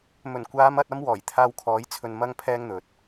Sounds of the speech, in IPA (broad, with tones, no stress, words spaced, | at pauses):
mɵ˨˩nkʷaː˨˧mɐ˨t̚ ɐ˥mwɔː˨˩jt̪ʰaː˧wkʰɔː˨˥j t͡sʰɵ˧nmɐ˥ŋpʰɛː˥ŋn̪ɵ˨t̚